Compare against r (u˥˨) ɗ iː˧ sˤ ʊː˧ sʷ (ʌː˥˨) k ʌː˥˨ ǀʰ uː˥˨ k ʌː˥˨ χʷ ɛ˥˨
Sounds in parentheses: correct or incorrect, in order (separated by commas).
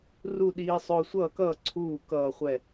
correct, correct